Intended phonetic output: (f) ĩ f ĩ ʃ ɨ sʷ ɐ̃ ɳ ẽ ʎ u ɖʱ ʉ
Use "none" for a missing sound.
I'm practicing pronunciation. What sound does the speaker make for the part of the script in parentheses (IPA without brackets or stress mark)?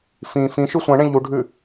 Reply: f